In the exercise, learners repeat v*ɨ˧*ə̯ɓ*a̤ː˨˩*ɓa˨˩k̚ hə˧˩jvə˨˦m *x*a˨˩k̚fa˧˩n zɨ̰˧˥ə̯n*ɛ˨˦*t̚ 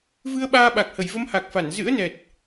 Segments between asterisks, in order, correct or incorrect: correct, incorrect, incorrect, incorrect

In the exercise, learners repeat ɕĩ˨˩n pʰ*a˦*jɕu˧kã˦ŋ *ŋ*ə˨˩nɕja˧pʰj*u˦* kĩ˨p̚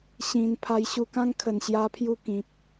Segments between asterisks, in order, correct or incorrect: incorrect, incorrect, incorrect

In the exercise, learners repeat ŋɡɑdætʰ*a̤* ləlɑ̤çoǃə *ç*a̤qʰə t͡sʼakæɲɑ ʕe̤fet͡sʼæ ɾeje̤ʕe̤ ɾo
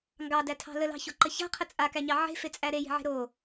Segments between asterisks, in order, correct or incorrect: incorrect, correct

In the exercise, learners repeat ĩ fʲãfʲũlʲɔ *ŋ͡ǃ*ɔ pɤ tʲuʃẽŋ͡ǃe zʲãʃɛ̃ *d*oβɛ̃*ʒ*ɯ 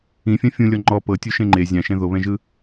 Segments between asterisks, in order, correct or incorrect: correct, incorrect, correct

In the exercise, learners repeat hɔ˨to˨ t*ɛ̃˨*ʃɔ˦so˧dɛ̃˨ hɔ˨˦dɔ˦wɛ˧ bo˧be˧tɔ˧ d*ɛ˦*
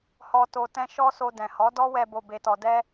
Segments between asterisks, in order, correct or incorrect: incorrect, correct

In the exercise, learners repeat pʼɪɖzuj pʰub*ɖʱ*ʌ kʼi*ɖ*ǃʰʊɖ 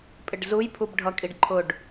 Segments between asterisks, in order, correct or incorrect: correct, correct

